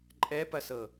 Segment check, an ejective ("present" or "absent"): present